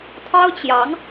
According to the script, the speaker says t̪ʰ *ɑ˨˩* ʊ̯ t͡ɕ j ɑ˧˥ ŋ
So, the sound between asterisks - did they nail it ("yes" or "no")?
no